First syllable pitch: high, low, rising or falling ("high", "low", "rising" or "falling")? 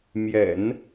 low